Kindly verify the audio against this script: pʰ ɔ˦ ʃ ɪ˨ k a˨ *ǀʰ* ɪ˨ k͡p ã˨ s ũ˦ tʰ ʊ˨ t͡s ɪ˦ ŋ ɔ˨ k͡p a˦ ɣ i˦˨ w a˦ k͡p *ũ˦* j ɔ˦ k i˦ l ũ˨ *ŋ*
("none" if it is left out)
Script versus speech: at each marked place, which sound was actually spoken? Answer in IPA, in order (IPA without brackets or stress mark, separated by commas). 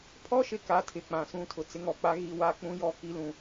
tʰ, ũ˦, none